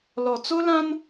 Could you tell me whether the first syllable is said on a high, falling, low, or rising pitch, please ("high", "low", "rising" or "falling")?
low